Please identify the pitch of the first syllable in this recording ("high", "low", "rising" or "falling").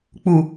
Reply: low